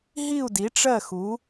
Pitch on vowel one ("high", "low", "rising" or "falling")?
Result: falling